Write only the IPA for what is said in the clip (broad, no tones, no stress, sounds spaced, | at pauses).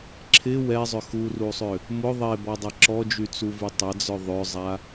ǁʰ ɪ w ɛ zˤ ʏ x u r u sˤ ʏ | m ʊ ðˤ e b ɔ dˤ ɐ ǁ ɔ d͡ʒ y t͡s u v y tˤ ɐ d͡z œ ðˤ ʏ zˤ a